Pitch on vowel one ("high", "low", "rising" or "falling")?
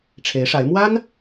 rising